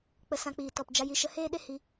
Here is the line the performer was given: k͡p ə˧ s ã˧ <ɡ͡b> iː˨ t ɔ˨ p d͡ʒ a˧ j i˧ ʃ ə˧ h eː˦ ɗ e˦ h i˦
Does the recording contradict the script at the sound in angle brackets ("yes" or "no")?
yes